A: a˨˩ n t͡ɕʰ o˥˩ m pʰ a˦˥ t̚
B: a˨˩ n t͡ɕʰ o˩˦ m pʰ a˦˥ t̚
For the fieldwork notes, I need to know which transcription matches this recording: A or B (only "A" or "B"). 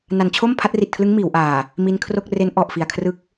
A